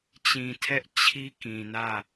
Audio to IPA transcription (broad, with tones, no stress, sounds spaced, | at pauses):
t͡ɕ ĩ˨ tʰ ɛ˦ ʔ t͡ɕʰ i˦ k ĩ˨ n ä˦˨